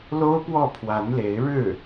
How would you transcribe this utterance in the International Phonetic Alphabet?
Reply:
l o˥ ʊ̯ p w ɔ˥˩ pʰ w a˧˥ n l e˧˥ ɪ̯ ɻ ɻ̩˥˩

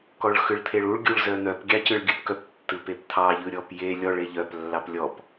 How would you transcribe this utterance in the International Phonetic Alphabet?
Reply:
k ɔ ɭ x ɯ ɭ t̪ʰ e ɭ u ɭ ɡʲ u ɭ z œ n̪ œ p ɡʲ ɑ c ɯ ɭ ɡʲ ɯ p k œ p tː ɯ p e p t̪ʰ ɑ ʎ ɯ ɾʲ ɔ p j e lʲ ɔ ɭ e ʎ œ p lː ɑ p lʲ ɔ p

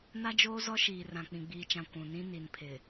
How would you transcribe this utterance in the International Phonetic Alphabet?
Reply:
n a˦ d͡ʒ oː˦ z ɔ˦ ʃ iː˨ r ã˨ k͡p ĩ˨ ɡ͡b iː˨ t͡ʃ ã˨ kʷ ũ˨ n ĩ˦ n i˨ n pʰ ɪ˨

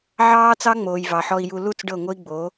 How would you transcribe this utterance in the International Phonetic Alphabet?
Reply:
ʕ ɑː˦ t͡s ɑ˦ ŋ͡m oː˨ j v ɑ˨ ħ ɔ˧ i̯ j u˧ l u˦˨ t͡s ɖ ɤ˦˨ ŋʷ ɤ˦ i̯ ɡ͡b o˨˦

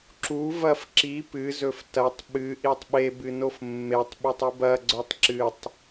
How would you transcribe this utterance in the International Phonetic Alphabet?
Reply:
ǁ u v ɐ f ǁ i p ɨ z ɵ f t ɐ tˤ ɓ ɨ ʔ i tˤ ɓ e b ɨ n o f mː e tˤ ɓ i tˤ ɨ b ɐ ɡ͡ǀ ɵ tˤ ǁ ɨ tˤ

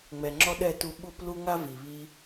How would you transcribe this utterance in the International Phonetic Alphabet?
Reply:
ŋ͡m ɛ˨ ŋ͡ǁ ɔ˦ ɗ ɛ˦˨ t u˧ ɓ u˦ p l u˦ ŋ a˦ v i˨ β i˧

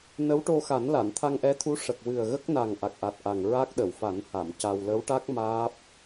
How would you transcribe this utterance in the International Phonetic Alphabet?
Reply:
n ə˧˥ w ʈ o˧ x a˨˩˦ n l a˨˩˨ n t̪ʰ a˧ ŋ ʔ ɛ˧˥ t̪ʰ u˧˥ ʂ ə˨˩ k̚ w ɨ˨˩ ə̯ ɣ ə˦˥ k̚ n a˨˩ ŋ ʔ a˨˩ k̚ ʔ a˨˩ t̚ ʔ a˨˩ ŋ ɹ a˦˥ k̚ ɗ ə˨˩˨ w f a˨˩˦ n h a˨˩˨ m c a˧ w l ə˧˥ w ʈ a˦˥ k̚ m aː˦˥ p̚

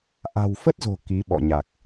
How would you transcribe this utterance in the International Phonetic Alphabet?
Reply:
ʔ a̤˨˩ w f ə˦˥ t̚ z o̤˨˩ k i˨˦ ɓ ɔ̰˧˨ ɲ a˨˩ k̚

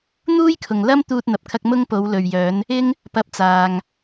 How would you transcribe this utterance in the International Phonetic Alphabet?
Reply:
n̪ uː˥ j kʰ ʊ˨ ŋ l ɐ˥ m t̪ uː˥ t̚ n̪ ɐ˧ p̚ kʰ ɐ˥ k̚ m ʊ˥ ŋ p o˨˧ w l ɵ˨ ɥ j œː˨˧ n | ɪ˥ ŋ | p ɐ˧ p̚ t͡s aː˨ ŋ

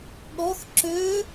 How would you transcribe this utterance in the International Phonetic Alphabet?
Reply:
ɠ ɔ x ǁ ø

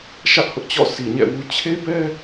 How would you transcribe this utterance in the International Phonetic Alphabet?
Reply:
ʃ ä˦ ʔ h ʊ˦ ʔ t͡ɕ ɔ̰˦˨ s i˨ ɲ ɛ̰˦˨ w u˦ t͡ɕʰ e˦ b ɛ˦

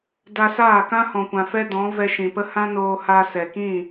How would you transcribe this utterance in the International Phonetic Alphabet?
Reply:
d a˧ s aː˦˨ k ã˦ h ɔ̃˨ kʷ ã˨ f ɛ˦ d ɔ̃˨˦ v ɛ˧ ʃ ĩ˨ p ə˦ h ã˦ n oː˧ h a˧ s ɛ˨ k ĩ˦˨

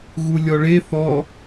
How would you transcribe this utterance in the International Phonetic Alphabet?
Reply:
ɣ u lʲ ɔ ɭ e θ ɔ

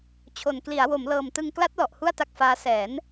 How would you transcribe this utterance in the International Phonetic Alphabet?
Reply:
t͡ɕʰ o˨˩ n k l i˩˦ a̯ w o˩˦ m l ɤː˨˩ m t ɯ˧ ŋ k l a˦˥ t̚ l ɔ˨˩ ʔ h u˥˩ a̯ t a˦˥ k̚ f aː˦˥ s ɛː˩˦ n

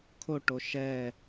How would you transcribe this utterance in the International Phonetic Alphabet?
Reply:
kʰ o ʈ o ʃ ɛ

